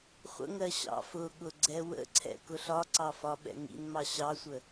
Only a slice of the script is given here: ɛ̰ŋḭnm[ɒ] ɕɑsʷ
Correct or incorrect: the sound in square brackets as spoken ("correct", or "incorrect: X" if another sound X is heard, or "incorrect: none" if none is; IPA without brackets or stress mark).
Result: incorrect: ɑ